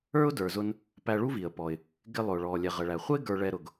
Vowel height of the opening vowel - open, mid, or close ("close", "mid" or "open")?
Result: mid